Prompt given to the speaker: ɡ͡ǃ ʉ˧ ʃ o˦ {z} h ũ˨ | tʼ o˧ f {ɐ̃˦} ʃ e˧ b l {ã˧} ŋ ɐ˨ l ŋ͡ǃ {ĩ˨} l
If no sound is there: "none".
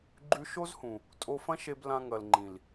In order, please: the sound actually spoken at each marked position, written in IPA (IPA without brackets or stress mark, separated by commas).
z, ɐ̃˦, ã˧, ĩ˨